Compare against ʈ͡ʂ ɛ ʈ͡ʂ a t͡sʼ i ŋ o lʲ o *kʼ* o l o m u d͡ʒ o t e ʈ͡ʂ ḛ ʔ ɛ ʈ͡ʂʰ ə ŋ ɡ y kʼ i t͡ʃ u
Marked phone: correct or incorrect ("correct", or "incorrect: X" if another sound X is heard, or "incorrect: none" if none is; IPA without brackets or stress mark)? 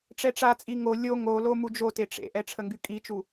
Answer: incorrect: ŋ